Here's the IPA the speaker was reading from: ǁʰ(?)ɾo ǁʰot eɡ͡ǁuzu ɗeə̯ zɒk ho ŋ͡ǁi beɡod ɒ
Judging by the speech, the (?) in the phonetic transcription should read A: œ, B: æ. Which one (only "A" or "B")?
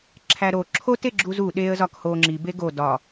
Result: B